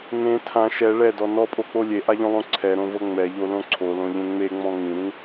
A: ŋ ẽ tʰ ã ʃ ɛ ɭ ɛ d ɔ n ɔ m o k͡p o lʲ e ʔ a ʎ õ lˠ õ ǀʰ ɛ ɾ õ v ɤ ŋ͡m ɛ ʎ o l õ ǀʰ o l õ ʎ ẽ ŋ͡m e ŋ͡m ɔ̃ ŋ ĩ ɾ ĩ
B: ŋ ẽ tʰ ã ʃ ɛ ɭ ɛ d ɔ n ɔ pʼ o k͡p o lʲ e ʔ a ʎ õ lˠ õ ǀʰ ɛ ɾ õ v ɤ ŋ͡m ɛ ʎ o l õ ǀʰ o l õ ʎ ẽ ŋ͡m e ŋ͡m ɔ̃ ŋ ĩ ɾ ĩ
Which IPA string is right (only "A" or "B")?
B